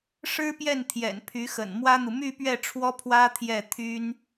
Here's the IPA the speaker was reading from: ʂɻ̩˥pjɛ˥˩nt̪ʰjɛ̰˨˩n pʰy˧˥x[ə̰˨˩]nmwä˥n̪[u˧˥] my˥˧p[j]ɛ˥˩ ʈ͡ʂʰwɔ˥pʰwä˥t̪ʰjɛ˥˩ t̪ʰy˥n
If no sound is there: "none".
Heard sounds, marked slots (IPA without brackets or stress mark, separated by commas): ə̰˨˩, u˨, ɥ